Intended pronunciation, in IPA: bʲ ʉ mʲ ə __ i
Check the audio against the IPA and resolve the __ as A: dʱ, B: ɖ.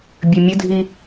A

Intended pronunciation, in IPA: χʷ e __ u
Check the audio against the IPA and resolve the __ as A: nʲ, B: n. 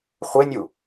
A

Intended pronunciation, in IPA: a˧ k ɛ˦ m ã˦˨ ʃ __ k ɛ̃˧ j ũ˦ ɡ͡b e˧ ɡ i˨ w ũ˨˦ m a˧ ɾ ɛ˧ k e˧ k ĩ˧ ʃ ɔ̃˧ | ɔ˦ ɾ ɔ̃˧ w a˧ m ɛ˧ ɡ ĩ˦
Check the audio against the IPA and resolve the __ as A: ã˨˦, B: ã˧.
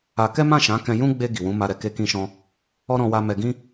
A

